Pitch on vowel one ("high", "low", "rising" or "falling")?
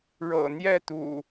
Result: low